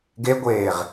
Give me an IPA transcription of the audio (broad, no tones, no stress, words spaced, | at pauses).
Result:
ɡeɡʷeːʁ